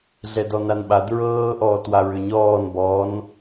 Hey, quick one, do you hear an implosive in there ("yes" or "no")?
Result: yes